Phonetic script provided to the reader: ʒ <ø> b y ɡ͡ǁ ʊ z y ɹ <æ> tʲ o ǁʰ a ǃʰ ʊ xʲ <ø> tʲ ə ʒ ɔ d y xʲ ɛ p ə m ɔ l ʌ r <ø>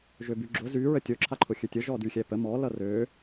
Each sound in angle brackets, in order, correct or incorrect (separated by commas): correct, incorrect, correct, correct